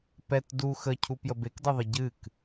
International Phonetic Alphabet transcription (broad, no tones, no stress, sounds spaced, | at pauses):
p ɛ t d u x ə cʰ u p j ə b e k d ɤ ðˤ ə ɟ ɨ k